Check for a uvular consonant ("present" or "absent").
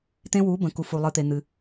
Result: absent